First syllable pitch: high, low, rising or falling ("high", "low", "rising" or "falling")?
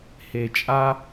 low